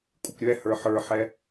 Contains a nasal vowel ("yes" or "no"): no